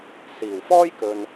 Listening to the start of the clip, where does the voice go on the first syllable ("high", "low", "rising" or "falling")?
low